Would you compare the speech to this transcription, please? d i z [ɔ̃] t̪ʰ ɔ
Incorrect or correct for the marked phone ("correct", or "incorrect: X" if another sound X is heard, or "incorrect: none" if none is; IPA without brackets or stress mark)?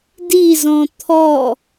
correct